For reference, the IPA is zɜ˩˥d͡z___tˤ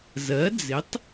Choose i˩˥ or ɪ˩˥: ɪ˩˥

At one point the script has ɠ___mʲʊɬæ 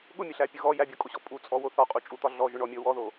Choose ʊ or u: ʊ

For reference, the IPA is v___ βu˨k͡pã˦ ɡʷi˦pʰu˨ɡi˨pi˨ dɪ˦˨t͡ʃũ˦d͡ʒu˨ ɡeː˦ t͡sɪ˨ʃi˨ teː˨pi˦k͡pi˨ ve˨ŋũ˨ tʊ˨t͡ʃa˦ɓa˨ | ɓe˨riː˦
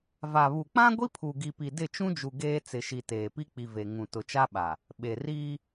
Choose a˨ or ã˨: a˨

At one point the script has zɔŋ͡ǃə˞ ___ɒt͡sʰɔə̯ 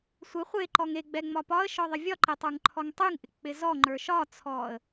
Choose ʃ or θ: ʃ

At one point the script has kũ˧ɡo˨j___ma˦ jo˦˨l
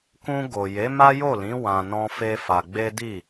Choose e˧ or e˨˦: e˨˦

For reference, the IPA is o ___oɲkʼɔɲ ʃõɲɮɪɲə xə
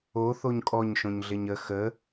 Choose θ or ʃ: θ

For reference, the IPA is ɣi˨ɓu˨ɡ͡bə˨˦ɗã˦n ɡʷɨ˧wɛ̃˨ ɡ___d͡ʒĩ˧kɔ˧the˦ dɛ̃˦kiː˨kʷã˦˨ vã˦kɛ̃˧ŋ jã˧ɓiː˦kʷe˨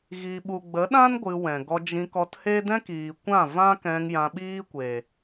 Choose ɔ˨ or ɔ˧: ɔ˧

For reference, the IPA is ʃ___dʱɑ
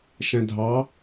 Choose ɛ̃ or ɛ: ɛ̃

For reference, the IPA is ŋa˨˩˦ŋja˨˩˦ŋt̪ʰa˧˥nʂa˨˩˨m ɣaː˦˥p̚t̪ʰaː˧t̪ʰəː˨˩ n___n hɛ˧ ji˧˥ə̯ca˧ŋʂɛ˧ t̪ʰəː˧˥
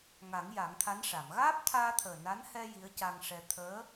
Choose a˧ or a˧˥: a˧˥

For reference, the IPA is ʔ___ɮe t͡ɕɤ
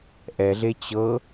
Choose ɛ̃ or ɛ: ɛ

